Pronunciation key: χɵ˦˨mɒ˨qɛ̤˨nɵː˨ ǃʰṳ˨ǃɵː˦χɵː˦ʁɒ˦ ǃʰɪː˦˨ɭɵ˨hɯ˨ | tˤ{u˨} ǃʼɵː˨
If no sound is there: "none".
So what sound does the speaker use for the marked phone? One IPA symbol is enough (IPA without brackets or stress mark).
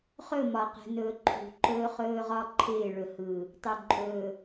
u˨